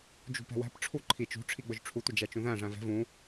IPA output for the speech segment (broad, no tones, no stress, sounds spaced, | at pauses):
d͡ʒ ṳ p ɛ̤ w æ̤ p ʈ͡ʂʰ u ǃʰ i t͡ʃ ṳ ʈ͡ʂʰ i ɡ͡b ʊ ʒ ʈ͡ʂʰ u tʷ ɪ d͡ʒ æ t͡ʃ ũ ð æ̃ ʐ æ̃ v ɛ̤ v ũ